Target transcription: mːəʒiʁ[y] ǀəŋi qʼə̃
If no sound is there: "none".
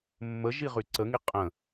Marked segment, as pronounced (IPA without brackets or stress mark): y